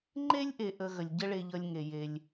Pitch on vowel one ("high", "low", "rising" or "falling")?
high